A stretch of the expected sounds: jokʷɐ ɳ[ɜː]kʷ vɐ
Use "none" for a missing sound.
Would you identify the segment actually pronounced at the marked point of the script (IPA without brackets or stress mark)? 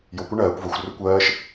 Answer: ɜː